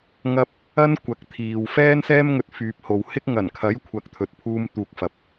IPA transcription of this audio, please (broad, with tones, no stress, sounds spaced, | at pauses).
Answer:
ŋ ɐ˥ p̚ | ɐ˥ n kʷ ɐ˨˥ k̚ t̪ʰ iː˨ w f ɛː˥ n s ɛː˥ m ŋ ɵ˧ t̚ f yː˨ p̚ h o˨ w h ɪ˥ k̚ ŋ ɐ˨˩ n kʰ ɐ˨˥ j kʷʰ ɐ˨ k̚ t̪ʰ ɵ˨ t̚ pʰ uː˧ m t̪ uː˨ k̚ f ɐ˨˥ p̚